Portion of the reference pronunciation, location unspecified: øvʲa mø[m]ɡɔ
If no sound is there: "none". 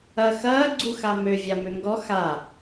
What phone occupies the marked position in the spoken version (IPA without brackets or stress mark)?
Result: ŋ